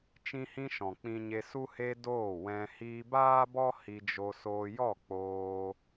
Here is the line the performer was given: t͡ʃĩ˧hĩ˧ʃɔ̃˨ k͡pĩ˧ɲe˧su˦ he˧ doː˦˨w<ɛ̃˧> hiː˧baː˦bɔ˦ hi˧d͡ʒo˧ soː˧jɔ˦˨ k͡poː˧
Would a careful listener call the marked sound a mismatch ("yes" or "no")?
no